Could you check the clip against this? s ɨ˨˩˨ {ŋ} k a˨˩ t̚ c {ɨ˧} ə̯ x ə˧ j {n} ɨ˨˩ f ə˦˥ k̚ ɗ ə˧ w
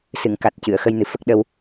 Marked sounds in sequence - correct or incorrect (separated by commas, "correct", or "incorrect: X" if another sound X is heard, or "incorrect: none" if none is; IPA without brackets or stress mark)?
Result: correct, incorrect: ɨ˨˩˨, correct